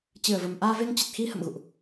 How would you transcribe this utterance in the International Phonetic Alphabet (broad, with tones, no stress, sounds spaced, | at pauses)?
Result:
t͡ɕ ɨ˨˩ ə̯ v ə˨˩ m ʔ aː˧ v e˧ ŋ t͡ɕ ə˨˩ t̚ x i˧ h ə̰˧˨ m ɣ ṵ˧˨ ʔ